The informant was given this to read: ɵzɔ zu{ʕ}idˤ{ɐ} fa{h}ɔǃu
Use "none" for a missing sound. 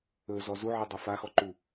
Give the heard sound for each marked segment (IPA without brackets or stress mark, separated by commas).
ʕ, ɐ, x